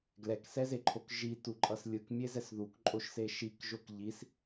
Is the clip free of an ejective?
no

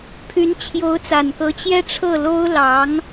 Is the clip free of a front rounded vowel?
no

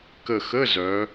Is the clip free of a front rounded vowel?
no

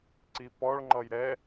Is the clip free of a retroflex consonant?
no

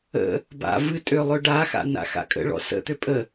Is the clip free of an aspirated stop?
yes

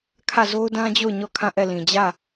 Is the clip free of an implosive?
yes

